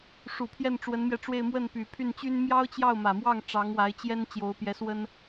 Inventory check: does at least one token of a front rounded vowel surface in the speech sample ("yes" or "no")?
yes